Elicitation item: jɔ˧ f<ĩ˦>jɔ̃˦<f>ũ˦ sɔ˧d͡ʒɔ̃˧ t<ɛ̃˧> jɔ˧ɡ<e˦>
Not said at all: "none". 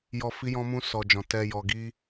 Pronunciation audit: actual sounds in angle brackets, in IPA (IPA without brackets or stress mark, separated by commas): i˦, m, ɛ˧, i˦